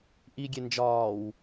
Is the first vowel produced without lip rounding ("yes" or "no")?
yes